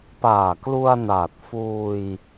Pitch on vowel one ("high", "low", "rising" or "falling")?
low